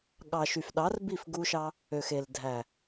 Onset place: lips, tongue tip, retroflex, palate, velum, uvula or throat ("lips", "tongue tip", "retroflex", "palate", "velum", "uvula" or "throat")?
velum